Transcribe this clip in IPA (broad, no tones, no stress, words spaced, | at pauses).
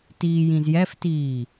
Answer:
tiːjĩzjɛftiː